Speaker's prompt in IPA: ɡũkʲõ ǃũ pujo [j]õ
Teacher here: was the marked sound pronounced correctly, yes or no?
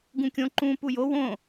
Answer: no